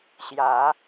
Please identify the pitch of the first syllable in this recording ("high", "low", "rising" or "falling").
rising